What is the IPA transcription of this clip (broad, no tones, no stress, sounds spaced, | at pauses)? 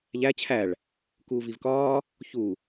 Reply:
ʎ æ t͡ɕʰ æ ɭ | k uː v i v k ɒː | ç u